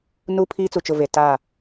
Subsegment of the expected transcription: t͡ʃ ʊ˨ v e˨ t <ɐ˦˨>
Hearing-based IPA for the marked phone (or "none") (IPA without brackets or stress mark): a˦˨